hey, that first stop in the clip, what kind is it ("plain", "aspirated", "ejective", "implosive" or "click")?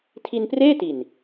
aspirated